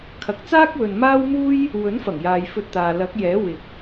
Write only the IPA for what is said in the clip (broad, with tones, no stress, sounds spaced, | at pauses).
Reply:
kʰ ɐ˨ k̚ t͡s aː˥ k̚ w ɵ˨ n m aː˥ w m uː˥ j | w ɵ˨˥ n f ɐ˨˩ ŋ j aː˨ j f ɵ˧ t̚ t̪ aː˨ l ɐ˨˥ k̚ j ɛː˨˥ w ɪ˨ k̚